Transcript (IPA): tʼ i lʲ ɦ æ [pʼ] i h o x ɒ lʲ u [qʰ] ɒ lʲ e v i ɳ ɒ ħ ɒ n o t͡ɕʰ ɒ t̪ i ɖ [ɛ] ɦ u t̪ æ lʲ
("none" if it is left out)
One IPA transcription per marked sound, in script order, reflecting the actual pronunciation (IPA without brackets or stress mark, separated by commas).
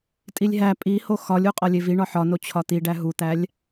pʼ, qʼ, æ